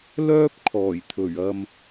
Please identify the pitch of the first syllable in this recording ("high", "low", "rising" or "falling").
high